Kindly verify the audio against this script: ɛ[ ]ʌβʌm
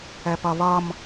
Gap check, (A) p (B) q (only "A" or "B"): A